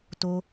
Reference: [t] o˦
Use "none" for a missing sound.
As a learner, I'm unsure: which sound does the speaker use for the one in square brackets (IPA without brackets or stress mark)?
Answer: t